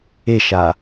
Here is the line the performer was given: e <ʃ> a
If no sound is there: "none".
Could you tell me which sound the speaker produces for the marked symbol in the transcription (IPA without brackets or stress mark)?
ʃ